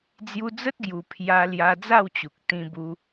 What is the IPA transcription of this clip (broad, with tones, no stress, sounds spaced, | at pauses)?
d͡z j u˧ d͡z ə˦ t̚ ɡ j u˨˩ pʰ j a˧ l j a˧ d͡z a˥˧ w t͡ɕ u˨ k̚ t̪ ĩ˧ b u˧